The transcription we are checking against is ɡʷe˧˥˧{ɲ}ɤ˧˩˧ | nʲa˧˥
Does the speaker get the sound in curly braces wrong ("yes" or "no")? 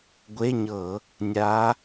no